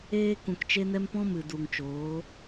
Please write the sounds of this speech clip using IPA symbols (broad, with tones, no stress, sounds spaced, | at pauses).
eː˧ k ũ˨ k t͡ʃ e˧ n ɛ˧ m p ɔ̃˦ m ɨ˨ d u˨ ŋ t͡ʃ oː˨˦